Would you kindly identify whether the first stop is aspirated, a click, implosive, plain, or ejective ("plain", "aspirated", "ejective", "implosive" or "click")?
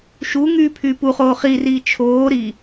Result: aspirated